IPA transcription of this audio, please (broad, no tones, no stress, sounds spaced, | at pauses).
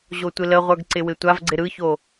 ʑ o tʷ ɪ l ə ʁʷ ə˞ ɡ ǀ ɪ w ɪ tʷ a v ɡ͡ǀ ɪ ɾ ɯ ç o